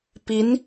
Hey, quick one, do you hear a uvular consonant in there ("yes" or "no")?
no